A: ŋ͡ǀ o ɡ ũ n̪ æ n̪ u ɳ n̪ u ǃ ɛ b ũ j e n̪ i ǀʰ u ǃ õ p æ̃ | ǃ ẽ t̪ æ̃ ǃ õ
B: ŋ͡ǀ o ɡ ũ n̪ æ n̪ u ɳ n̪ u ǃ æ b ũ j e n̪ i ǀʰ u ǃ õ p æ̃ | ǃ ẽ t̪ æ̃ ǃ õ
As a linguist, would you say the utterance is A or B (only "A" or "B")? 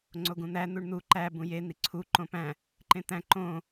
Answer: B